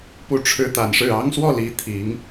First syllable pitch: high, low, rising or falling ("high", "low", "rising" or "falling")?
falling